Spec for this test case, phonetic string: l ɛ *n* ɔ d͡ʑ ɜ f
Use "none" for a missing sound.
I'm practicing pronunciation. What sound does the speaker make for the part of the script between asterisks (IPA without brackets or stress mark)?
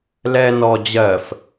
n